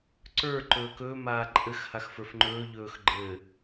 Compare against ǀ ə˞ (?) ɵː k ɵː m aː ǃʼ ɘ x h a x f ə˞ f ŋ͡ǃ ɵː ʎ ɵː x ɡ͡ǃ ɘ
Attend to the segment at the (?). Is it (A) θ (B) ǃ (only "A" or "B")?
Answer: B